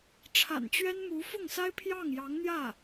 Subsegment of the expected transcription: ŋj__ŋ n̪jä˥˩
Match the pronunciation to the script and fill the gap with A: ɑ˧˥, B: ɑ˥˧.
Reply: A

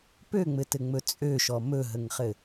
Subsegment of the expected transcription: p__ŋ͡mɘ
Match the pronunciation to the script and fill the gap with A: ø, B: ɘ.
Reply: A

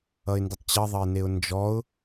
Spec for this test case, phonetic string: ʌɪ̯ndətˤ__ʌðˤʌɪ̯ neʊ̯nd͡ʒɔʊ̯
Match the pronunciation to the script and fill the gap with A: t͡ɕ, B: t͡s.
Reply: A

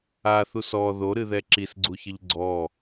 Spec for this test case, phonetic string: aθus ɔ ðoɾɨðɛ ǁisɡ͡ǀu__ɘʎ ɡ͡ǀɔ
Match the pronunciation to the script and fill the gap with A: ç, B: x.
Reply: A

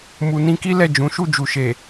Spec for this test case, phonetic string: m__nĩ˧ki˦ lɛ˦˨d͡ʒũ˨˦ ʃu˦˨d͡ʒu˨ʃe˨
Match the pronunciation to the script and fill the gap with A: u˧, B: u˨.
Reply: B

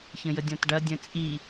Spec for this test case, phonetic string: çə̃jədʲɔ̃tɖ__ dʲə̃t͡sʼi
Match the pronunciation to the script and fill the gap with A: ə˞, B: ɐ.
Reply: B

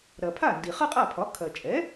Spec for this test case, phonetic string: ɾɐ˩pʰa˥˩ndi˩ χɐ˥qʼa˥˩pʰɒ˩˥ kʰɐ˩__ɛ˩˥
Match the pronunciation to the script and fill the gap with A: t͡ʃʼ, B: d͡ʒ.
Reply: A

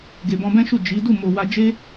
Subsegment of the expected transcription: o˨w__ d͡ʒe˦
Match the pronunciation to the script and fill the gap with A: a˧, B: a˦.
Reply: A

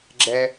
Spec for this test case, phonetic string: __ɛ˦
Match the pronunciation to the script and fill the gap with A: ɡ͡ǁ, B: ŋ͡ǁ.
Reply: A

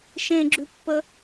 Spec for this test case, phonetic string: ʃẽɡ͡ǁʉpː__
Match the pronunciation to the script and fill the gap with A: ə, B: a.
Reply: A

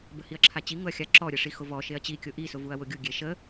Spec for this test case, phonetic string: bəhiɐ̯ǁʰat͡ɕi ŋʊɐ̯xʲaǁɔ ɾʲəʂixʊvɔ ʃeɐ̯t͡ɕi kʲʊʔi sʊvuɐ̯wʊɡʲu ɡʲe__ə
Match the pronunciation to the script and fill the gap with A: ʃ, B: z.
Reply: A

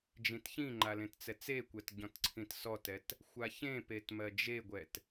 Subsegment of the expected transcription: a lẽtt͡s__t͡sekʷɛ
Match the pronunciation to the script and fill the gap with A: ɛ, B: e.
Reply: A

